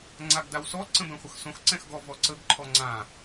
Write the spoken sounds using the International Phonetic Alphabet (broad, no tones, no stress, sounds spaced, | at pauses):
ŋ͡ǀ a ɡ d a w s ɔ ǀ ə̃ b ɛ̃ χʷ ə x s õ x ǀ ɛ̃ x ɡ ɔ v ɔ ǀ ə ɡ ǃʰ ɔ ŋ͡ǀ ã